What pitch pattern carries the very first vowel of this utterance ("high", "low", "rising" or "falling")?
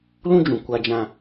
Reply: high